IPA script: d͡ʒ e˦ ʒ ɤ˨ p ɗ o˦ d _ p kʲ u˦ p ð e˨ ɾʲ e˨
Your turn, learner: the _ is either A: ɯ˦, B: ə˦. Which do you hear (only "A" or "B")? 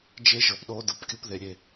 A